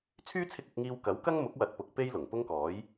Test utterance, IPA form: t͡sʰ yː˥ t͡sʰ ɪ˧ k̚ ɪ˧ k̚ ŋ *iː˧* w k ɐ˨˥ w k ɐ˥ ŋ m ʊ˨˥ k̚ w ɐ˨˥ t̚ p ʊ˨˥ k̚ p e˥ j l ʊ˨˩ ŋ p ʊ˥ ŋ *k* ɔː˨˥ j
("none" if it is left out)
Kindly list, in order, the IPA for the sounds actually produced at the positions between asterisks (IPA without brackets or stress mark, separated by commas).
iː˧, k